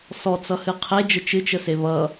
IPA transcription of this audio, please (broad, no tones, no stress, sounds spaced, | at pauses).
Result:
s ɔ t͡s ʌ h ɨ qʰ e d͡ʒ ə t͡ʃ ɨ t͡ʃ ə s e β ʌ